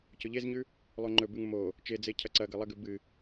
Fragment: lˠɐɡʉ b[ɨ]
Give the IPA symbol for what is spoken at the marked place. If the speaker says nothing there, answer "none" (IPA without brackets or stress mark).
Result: ɨ